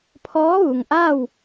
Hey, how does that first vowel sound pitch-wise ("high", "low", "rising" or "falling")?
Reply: rising